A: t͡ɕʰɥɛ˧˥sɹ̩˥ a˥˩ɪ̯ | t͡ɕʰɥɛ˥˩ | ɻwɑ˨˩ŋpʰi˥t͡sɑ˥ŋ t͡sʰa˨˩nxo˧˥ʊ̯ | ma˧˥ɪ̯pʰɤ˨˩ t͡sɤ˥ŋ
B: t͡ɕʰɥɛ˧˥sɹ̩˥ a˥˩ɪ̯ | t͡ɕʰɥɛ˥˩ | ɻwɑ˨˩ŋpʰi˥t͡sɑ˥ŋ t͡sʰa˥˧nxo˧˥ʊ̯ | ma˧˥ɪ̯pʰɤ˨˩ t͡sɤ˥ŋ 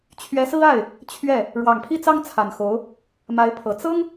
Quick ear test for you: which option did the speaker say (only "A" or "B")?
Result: A